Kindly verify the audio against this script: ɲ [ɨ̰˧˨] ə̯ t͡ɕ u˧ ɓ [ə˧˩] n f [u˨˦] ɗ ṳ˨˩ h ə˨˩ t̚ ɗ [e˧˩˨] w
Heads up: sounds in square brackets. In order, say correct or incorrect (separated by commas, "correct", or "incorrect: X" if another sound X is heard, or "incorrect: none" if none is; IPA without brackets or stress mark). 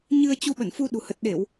incorrect: ɨ˧, correct, incorrect: u˧, correct